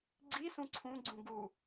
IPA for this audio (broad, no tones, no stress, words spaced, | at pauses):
ɡ͡ǀisũ ǀʰũɡ͡ǀũ ɡu